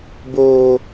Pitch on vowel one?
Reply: low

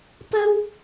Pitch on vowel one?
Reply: high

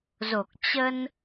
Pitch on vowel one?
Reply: low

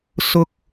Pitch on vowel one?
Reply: high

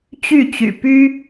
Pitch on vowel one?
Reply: falling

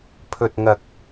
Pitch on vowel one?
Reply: low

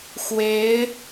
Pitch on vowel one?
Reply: rising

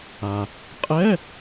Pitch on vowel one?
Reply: low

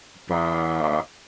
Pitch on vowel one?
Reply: low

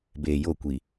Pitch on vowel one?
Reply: low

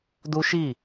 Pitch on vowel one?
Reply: high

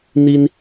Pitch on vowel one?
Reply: high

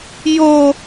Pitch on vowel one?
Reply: high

